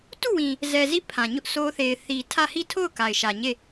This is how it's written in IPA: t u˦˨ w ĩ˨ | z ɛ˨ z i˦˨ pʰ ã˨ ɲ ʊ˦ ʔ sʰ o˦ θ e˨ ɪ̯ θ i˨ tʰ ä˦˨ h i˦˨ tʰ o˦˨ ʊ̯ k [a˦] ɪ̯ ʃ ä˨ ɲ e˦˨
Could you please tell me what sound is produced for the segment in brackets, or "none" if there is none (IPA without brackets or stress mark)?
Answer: a˨